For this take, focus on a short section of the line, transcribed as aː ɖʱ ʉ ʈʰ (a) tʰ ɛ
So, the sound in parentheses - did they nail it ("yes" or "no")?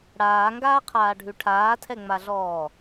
no